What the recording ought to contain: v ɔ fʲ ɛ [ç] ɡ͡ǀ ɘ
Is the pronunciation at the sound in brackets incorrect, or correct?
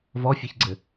correct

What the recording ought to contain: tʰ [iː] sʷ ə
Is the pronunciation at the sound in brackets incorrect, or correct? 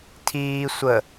correct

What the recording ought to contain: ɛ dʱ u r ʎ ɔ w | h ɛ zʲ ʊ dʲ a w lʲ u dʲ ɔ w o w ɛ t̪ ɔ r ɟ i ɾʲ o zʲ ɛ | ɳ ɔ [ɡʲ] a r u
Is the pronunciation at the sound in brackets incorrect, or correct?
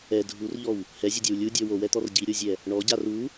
incorrect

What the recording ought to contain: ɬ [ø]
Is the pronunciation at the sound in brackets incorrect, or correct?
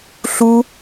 incorrect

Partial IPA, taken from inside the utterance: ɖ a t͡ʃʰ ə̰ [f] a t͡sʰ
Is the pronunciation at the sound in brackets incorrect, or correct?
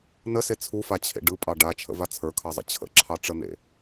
incorrect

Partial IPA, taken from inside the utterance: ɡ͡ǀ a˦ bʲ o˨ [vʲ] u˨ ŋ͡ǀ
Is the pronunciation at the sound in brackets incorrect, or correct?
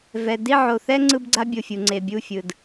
incorrect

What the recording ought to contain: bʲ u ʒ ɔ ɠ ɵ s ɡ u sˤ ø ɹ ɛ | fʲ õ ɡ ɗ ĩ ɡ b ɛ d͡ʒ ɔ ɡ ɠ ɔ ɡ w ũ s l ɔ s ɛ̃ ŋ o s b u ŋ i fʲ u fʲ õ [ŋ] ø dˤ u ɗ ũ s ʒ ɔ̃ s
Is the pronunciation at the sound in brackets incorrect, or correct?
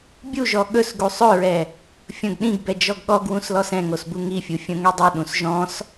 correct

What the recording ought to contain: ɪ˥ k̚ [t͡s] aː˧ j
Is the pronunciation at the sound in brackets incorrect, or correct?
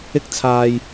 incorrect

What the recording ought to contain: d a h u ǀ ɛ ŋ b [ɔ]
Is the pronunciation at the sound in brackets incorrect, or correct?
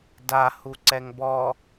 correct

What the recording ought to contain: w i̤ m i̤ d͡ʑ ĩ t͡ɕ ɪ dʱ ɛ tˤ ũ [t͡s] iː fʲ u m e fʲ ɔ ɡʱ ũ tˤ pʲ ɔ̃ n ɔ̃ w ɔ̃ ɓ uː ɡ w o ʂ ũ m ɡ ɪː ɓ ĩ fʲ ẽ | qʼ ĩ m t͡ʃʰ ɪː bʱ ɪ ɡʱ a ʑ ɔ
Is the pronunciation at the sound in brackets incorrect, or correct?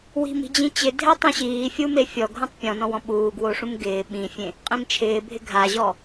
incorrect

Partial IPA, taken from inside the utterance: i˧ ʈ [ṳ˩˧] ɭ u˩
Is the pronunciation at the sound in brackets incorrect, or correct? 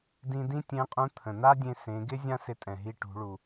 correct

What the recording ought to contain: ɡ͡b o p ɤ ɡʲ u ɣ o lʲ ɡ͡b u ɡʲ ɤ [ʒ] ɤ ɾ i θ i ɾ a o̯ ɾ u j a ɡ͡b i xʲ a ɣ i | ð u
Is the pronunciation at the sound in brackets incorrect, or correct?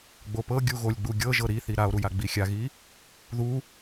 correct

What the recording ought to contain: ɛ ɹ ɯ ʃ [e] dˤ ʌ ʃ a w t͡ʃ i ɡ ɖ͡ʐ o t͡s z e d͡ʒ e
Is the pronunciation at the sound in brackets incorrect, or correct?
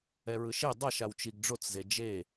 correct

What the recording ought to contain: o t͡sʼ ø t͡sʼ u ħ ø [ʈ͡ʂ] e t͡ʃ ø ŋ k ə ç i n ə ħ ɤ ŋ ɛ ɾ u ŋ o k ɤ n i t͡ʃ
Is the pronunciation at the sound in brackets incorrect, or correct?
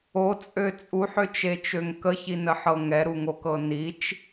incorrect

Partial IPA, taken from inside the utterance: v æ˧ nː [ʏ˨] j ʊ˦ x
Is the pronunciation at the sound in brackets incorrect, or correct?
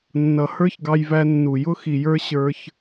incorrect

